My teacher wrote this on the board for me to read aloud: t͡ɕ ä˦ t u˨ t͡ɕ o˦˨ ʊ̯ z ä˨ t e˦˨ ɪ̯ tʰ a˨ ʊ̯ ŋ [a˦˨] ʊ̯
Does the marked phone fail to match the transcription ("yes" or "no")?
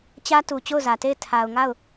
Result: no